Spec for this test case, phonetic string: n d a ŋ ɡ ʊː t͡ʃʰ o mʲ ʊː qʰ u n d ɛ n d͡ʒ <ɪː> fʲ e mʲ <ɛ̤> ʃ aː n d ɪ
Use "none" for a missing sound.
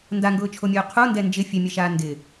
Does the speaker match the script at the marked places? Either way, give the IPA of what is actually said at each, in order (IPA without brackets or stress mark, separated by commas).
ɪ, ɛ